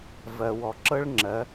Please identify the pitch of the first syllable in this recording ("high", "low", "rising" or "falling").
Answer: low